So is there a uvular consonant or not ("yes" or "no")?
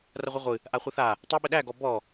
yes